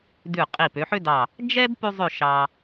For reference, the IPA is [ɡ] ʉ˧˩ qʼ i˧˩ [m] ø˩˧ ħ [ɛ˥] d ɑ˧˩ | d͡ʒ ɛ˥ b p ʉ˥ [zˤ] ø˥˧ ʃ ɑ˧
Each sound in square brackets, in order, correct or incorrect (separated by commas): incorrect, incorrect, incorrect, correct